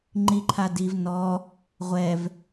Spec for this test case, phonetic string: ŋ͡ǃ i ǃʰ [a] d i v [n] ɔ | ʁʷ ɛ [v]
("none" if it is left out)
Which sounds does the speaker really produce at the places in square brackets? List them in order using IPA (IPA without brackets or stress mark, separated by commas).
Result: a, n, v